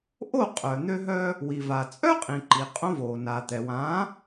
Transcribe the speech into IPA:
ʔ o˥˩ qʼ œ˩ n̪ ø˧ ɦ œ˧ | w i˩ v a˩ t͡sʼ œ˥ qʼ ĩ˩ ǃ i˩ qʼ õ˧ v oː˩ n a˩ t̪ ɛ˩ w ã˩˥

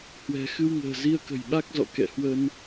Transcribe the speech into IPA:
h w ɛ̤˨˩ x ɨ˧ w ŋ ə̤ː˨˩ z i˧ ə̯ k ə̤˨˩ j ɓ a˦˥ k̚ z ɔ̰˧˨ k ɛ̰˧˨ h w ə˧ n

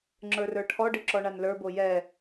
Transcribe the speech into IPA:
ŋ͡ǁ ə˞ r ə˞ ʈʰ ɔ ɖ ɨ ǁ ɔ ɳ a n l ə˞ b o j ɛ

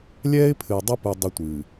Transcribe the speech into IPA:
lʲ ɛː˦ ɪ̯ pʰ ɨ˨ ɪ̯ dˤ ɐ˦ p u˨ dˤ ɐ˦ tʷ ɨː˨

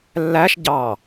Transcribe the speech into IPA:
lː æ ʃ ɟ ɑ

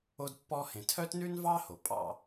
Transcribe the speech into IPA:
o˦ d pː ɔ˦ h ẽ˨ tʰ œ˦ t n ʉ˦ n v ɑ˦ h o˨ pʼ ɑ̰˦˨

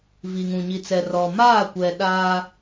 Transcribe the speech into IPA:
v i˨ ŋ ũ˨ ɲ i˨ t͡s ɛ˨ r ɔ˨ m aː˦˨ kʷ ɛ˨ ɗ aː˦

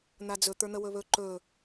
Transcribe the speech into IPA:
n̪ a d͡z ɵ t̪ ə˞ n̪ ə w ɵ β ɵ ǃ ɵ

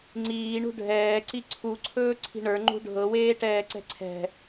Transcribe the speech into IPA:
ŋ͡ǀ iː ɳ ṳ ɖʱ ɛː ǀ i ǀʰ u ǀʰ ɵː ǀʰ i̤ ɳ ə˞ ŋ͡ǃ ṳ ɖʱ ɤ w eː ʈ ɛː ǀ ɛ̤ ǀʰ ɛ̤

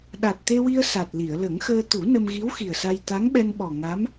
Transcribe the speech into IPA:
ɗ a˨˩ t̚ t̪ e˧ w i˧ ə̯ s a˨˩ t̚ l i˨˩˨ ə̯ l ə˨˩˦ ŋ x əː˧ t̪ u˨˩˦ n ə˧ m ɣ i˧˥ w x i˨˩ ə̯ s a˧ j t̪ a˧˥ ŋ ɓ ɛ˧ n ɓ ɔ˨˩ ŋ a˧˥ m

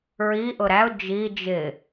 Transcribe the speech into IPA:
ɹ i ʔ ʊ ɾ æ ʊ̯ d͡ʒ i d͡ʒ ɪ

